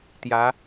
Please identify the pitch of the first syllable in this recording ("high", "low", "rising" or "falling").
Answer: rising